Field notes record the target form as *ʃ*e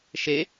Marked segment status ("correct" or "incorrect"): correct